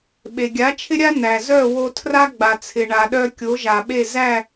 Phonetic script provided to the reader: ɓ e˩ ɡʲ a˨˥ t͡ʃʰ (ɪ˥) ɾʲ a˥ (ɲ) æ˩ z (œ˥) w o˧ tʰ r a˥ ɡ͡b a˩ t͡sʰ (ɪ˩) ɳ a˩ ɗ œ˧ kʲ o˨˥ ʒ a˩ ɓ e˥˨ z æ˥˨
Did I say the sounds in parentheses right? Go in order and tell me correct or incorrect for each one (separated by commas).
correct, incorrect, incorrect, correct